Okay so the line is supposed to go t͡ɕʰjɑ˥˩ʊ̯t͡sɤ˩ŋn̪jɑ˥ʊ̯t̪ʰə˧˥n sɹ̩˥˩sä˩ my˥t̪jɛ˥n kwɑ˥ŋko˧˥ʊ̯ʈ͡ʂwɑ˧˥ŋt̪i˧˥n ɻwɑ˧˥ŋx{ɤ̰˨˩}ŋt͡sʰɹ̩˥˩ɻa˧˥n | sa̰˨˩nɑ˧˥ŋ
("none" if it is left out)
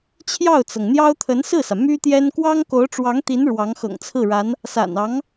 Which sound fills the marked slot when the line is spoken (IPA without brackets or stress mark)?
ɤ̰˨˩